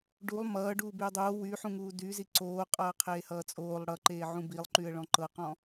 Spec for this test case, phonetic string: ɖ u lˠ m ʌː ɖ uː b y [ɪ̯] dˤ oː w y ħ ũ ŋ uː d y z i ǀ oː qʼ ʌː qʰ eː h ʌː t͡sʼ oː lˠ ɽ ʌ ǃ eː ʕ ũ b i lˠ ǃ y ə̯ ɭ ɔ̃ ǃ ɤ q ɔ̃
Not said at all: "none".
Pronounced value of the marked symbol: ə̯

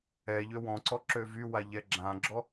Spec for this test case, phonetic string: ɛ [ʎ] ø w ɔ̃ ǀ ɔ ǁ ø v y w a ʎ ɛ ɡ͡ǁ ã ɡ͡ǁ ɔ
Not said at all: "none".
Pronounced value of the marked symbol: ʎ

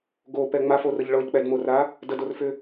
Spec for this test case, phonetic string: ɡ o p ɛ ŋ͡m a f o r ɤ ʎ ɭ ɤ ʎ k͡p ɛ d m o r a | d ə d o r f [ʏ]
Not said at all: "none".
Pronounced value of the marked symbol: ʏ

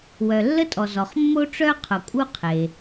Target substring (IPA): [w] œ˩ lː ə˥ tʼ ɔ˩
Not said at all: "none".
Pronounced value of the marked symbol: w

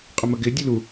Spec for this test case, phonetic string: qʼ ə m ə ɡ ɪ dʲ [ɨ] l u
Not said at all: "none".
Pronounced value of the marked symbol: ɨ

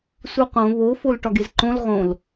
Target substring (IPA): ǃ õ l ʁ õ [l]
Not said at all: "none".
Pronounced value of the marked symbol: l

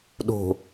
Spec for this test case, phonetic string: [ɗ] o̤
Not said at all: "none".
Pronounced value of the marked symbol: ɗ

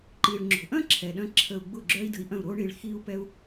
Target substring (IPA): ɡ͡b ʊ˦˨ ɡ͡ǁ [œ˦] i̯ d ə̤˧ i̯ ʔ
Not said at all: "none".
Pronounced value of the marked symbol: œ˦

